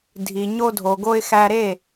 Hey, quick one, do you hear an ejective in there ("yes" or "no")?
no